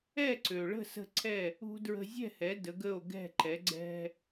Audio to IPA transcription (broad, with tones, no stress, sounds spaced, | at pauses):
ɛ˥˩ ǀ ø˩ ɭ ə̤˥˩ s ə̤˥˩ ǀʰ ɛ˥˩ | ṳ˥ d ɹ ə̤˧ zʲ ɛ̤˥˩ h ɛ˩˥ d ə˩˥ ɡ ə˥˩ o̯ ɡ ɛ̤˥˩ ǃ ɛ˩˥ ɡ͡ǀ ɛ̤˧